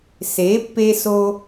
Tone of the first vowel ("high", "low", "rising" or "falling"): rising